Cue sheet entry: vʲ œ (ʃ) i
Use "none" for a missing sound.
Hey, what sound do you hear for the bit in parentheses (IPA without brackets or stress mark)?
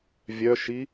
ʃ